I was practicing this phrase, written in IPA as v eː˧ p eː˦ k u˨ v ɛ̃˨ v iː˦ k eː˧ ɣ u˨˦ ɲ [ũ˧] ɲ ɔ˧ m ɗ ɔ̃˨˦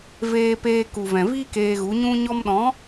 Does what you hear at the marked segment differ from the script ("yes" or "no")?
no